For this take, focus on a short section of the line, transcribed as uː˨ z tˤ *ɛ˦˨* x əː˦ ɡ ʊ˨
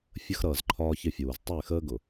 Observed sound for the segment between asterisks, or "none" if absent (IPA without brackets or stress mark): ɛ˦˨